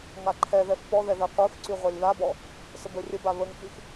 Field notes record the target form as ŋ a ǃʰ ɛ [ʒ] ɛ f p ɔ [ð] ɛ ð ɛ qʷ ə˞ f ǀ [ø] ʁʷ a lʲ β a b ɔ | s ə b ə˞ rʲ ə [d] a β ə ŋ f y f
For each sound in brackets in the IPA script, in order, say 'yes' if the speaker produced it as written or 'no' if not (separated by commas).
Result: no, yes, no, no